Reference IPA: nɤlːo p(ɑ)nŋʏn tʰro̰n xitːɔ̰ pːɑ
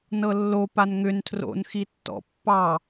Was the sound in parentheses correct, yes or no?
no